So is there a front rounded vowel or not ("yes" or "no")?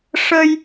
no